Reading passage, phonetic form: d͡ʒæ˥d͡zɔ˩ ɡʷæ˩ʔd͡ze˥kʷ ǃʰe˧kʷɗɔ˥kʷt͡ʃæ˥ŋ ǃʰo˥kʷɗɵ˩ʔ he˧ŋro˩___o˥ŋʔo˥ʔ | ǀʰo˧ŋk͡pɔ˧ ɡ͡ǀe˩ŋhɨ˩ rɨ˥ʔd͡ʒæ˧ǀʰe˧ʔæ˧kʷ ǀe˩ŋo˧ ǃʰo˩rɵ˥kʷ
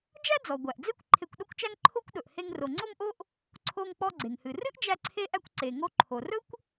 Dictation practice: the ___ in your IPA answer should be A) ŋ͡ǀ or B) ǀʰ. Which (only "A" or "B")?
A